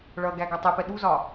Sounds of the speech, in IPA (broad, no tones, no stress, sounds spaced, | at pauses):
ɭ ʌ ɡ æ ɡ ɑ tˤ ɛ p ɛ ɗ u z ɒ